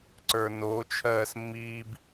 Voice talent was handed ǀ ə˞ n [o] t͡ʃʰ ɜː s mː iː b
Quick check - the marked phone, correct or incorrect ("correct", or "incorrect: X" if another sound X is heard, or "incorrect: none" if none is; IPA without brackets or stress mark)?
correct